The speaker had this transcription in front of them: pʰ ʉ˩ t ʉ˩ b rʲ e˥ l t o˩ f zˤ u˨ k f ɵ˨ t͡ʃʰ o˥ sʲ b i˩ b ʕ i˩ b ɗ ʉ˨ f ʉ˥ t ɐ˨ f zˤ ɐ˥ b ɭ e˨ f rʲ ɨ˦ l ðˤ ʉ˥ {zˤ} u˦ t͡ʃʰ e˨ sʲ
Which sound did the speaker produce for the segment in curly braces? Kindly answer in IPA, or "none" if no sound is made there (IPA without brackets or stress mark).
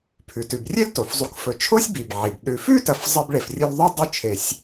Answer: dˤ